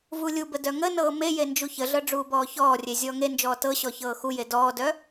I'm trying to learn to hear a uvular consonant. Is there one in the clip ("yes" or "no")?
no